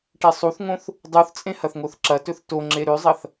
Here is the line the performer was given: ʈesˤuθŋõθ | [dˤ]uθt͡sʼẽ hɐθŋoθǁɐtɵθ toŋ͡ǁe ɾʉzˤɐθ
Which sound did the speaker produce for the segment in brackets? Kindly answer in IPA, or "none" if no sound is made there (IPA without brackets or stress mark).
dˤ